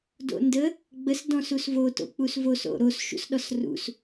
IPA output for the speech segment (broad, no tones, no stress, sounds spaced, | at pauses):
d o̰ n d ə | ɡ͡b ə s d ɔ̃ s u s v o t o̰ k͡p u s v o s o̰ ɾ o s ʃ ṵ s ɗ ɔ s r ṵ s